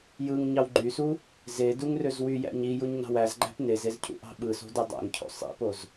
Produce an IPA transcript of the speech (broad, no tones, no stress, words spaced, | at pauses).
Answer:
jɯŋ ɲɑwɡ͡ǃysu | zeduŋ røzwyjæ̰ɲ i juɲnɑ̤wæzɡ͡ǃæ̤p nezez cʰṵʔɑ̤ɓɯso̤ dɯdˤæ̰ŋcʰo̰ sˤḭpoz